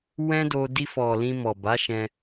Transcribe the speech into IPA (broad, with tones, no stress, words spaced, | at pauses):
wɛ̃˦do˧ di˧fɔ˨ lĩ˧mɔ˨ba˨˦ʃɛ̃˧